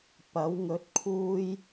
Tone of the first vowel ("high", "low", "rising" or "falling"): rising